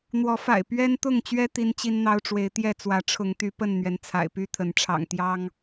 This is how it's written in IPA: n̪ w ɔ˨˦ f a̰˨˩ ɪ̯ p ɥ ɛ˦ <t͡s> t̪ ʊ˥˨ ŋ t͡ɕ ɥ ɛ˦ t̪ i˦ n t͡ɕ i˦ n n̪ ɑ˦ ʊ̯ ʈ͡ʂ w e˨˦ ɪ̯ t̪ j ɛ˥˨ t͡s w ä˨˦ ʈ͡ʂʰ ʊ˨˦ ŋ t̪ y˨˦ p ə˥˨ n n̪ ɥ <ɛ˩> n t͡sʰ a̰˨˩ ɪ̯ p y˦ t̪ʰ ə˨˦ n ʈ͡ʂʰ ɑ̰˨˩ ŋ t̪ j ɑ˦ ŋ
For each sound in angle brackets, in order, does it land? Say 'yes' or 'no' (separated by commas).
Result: no, yes